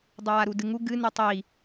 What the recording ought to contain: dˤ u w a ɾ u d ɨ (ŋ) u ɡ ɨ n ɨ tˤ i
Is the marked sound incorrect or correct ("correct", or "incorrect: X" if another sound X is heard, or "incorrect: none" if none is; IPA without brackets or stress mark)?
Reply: correct